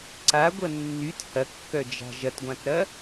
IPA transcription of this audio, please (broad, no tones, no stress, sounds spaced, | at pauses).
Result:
ǀ a ɡʷ ɐ nː y t h ɐ kː œ d͡ʒ a̤ ʒ ɐ t ɡʷ ã t ɾ ɐ